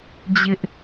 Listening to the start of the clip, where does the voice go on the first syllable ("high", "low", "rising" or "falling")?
high